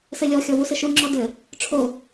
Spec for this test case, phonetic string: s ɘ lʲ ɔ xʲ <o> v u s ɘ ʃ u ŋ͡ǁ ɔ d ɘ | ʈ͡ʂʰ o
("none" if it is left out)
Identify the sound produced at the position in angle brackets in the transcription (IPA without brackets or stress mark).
ɔ